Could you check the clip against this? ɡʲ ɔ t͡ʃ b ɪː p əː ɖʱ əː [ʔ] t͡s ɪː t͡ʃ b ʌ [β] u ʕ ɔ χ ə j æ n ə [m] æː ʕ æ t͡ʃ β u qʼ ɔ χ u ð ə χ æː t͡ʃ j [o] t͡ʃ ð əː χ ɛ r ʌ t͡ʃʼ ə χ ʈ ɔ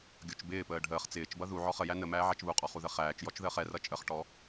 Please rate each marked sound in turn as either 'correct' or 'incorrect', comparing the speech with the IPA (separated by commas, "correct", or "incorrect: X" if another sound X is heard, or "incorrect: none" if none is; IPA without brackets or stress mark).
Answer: incorrect: χ, incorrect: ð, correct, incorrect: ɔ